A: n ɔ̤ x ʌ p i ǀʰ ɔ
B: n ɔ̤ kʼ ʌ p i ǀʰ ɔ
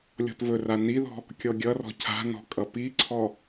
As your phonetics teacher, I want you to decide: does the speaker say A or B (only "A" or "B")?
B